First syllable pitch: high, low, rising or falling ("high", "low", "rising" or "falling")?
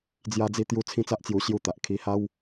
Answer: high